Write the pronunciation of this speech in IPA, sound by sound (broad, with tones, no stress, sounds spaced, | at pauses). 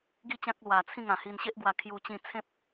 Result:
ɡ i˥˧ t͡ɕ ã˦ k̚ l w a˧ t͡sʰ ĩ˥˧ ŋ ã˨˩ h i˧ n ɕ e˦ ʔ ɡ w a˧ kʰ j u˧ t͡ɕ ĩ˧ t͡sʰ ẽ˦ p̚